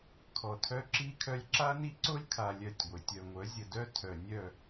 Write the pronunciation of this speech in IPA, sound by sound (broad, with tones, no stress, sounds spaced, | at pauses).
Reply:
kʰ ɔ˨ tʰ œ˦ ǁ i˦ kʰ œ˦ lʲ ǁ a˦ n i˦ ǀ o˦ lʲ kʰ a˨ lʲ œ˦˨ tʲ ɡʷ e˨ tʲ œ˨ ŋʷ œ˨˦ zʲ ə˨ d œ˦ tʰ œ˨ nʲ œ˦˨